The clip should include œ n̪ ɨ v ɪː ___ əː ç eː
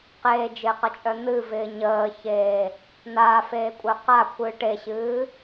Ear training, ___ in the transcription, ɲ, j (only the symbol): ɲ